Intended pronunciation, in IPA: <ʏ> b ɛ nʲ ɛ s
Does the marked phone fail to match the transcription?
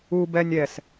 yes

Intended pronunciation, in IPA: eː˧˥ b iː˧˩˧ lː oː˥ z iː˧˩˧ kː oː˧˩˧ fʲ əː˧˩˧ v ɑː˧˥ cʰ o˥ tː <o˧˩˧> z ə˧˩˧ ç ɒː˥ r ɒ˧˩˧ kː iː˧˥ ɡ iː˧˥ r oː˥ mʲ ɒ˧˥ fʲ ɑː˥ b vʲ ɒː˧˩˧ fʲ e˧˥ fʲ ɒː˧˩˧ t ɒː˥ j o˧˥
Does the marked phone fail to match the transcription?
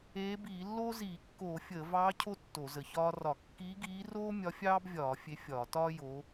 no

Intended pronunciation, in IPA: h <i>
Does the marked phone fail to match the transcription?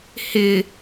yes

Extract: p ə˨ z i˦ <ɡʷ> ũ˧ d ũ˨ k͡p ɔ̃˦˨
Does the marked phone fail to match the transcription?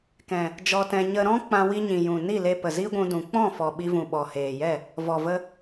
no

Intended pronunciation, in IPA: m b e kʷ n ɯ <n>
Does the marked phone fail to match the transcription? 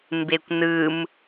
yes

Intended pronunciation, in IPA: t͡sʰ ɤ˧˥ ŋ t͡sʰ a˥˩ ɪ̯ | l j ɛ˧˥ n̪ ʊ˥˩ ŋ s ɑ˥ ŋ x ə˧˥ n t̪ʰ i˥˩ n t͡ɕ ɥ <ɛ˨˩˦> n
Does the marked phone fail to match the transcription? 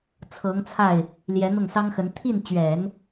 no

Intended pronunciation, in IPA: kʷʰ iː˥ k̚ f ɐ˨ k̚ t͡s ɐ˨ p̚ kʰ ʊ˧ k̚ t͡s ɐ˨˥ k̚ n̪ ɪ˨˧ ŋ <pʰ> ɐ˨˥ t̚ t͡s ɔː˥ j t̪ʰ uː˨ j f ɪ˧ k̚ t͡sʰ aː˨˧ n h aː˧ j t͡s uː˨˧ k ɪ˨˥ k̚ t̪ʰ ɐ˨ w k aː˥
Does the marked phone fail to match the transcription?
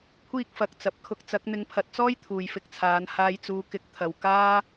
no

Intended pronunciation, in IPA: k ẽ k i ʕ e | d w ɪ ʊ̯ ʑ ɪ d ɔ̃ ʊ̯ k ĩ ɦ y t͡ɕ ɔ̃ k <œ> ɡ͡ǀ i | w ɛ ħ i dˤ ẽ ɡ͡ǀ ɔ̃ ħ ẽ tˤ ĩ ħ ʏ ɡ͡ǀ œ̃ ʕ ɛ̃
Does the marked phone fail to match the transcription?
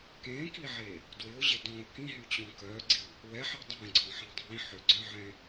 no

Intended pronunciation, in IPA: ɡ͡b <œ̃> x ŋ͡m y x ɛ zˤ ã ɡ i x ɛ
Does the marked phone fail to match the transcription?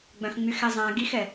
no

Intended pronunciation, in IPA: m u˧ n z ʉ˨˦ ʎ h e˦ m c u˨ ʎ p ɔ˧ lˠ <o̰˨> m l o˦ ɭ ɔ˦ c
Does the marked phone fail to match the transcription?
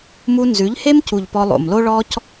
no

